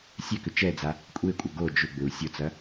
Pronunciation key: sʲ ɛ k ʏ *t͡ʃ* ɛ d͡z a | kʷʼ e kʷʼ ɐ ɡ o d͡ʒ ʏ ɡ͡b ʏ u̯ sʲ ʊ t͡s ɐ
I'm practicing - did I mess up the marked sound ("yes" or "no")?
no